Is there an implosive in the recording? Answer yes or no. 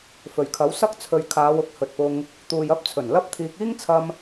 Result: no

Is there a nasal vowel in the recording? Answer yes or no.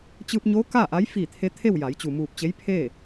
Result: no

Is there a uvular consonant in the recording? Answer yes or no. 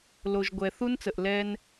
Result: no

